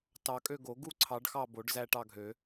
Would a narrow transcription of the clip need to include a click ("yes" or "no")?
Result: yes